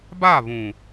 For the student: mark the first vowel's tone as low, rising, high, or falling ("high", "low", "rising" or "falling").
falling